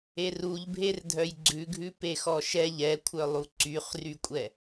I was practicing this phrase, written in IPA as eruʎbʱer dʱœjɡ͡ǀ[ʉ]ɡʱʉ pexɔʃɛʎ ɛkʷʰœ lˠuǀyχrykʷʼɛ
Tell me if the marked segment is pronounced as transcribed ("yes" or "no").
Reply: yes